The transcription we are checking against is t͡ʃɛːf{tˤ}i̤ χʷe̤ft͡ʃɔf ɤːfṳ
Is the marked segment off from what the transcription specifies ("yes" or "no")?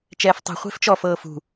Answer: no